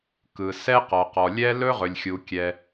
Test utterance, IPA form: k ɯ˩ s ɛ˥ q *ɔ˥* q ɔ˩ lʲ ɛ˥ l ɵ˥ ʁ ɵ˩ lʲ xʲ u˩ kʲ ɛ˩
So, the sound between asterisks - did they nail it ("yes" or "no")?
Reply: no